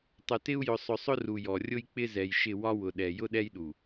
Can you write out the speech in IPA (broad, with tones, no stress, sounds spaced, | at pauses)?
tˤ ʊ˨ t ɪ˦ u̯ j ʊ˨ sˤ ʊ˨ sˤ ʊ˦ r u˨ j ɔ˨ rʲ ʊ˦ j k͡p ɪ˦ z ɛ˨ j ʃ ɪ˦˨ w ɒ˦ w ʊ˨ ɗ ɛ˨ j ʊ˦ ɗ ɛ˦ j ɗ u˨